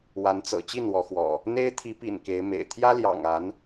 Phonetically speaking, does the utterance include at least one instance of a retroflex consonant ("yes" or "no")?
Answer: no